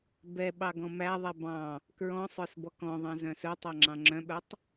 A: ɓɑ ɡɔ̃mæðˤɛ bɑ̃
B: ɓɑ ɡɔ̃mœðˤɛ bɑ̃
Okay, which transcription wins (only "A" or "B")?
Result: A